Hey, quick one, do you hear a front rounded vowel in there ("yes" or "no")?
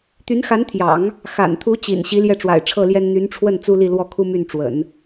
yes